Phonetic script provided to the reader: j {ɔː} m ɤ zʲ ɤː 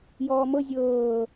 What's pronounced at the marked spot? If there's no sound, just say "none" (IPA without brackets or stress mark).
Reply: ɔː